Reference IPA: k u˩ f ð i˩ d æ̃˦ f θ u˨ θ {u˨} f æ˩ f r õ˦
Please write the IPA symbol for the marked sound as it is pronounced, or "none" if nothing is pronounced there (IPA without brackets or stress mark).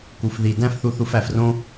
u˨